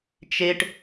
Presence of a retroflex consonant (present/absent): present